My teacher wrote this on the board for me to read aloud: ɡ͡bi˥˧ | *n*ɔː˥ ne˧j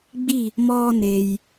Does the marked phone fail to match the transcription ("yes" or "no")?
yes